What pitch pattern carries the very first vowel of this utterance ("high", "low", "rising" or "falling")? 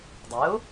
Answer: rising